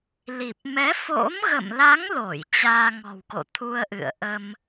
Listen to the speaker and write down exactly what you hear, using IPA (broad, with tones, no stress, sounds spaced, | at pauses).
l i˨˩ p̚ m ɛ˨˦ f o̰˧˥ m ɣ ə̰˧˨ m l a˨˦ ŋ l o˧˩ j t͡ɕ aː˧ ŋ ɔ̤˨˩ w k o̰˧˨ t̪ʰ u˧ ə̯ ʔ ɨ̰˧˨ ə̯ ʔ ə˧ m